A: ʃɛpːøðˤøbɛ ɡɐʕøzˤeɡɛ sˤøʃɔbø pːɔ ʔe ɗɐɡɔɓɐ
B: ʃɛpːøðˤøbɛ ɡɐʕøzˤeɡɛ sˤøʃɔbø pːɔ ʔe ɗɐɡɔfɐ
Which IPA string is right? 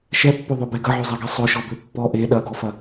B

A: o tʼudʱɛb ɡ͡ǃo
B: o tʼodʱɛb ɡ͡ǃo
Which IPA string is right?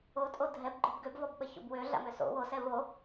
B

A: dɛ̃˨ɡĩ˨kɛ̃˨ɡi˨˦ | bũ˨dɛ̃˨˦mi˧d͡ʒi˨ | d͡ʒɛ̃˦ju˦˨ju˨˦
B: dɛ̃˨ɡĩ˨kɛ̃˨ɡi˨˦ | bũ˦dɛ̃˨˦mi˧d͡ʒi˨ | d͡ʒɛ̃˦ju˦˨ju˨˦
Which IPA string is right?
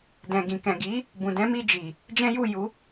A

